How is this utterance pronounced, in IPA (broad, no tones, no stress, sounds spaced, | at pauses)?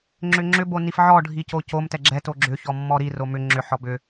ŋ͡ǁ ʏ ŋ͡ǁ ʏ b o n i f ʕ ɔ ɖʱ i c o c o m t ɛ ɡ͡ǁ ɛ t o ɡ͡ǁ ʏ ç ɔ mː ɔ ɾ i r o m ʏ ŋ͡ǁ ʏ ħ ɔ b ʏ